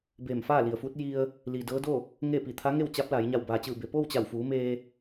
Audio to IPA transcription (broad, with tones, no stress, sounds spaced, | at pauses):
b eː˧˩ m f aː˥˨ l i˩ ə̯ f u˧˥ t̚ j i˧ ə̯ | l i˩ d ɤː˧˥ d o˥˨ | ŋ e˥˨ p i˧˩ t̪ʰ a˧˥ ŋ e˥˨ w t͡ɕ a˧˥ p̚ l a˩˧ j ɲ a˧˩ w b aː˩ t͡ɕ ɯː˧˩ b e˩ p oː˥˨ w t͡ɕ a˧˩ w f uː˩˧ m eː˧